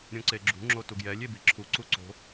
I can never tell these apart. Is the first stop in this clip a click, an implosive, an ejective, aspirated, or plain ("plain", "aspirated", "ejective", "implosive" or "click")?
click